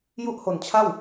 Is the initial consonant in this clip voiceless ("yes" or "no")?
no